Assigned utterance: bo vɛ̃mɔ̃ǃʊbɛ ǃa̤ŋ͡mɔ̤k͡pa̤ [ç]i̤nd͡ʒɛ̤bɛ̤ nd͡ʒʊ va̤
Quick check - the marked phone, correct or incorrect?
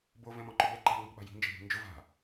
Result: incorrect